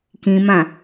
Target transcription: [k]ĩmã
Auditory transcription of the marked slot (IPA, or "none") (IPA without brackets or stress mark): k